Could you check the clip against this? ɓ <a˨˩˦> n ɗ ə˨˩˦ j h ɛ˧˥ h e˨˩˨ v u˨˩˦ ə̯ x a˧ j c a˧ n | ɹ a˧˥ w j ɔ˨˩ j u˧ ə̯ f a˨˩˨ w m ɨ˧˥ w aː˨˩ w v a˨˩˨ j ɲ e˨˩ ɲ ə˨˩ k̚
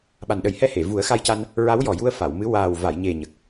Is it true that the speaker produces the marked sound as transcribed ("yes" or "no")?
no